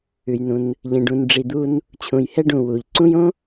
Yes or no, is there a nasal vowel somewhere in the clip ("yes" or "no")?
yes